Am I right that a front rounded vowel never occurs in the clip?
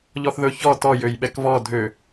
no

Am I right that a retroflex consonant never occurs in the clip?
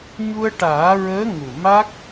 no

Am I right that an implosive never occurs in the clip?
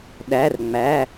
no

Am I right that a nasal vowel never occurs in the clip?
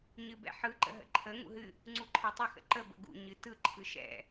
yes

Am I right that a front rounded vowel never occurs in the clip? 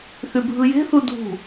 no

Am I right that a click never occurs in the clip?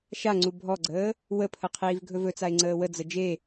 no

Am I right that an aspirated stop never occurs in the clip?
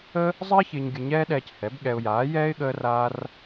yes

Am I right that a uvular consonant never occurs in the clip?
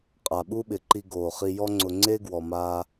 no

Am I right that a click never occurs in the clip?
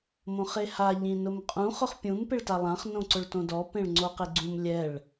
no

